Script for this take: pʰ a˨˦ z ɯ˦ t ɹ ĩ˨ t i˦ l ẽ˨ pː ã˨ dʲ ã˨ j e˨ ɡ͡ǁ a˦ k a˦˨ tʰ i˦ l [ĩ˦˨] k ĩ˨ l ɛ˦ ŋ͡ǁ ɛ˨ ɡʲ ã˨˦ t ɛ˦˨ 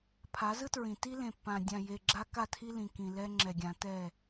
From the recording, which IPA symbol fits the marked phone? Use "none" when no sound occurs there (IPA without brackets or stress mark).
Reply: ĩ˨